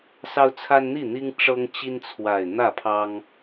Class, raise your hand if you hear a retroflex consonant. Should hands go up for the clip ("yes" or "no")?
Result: yes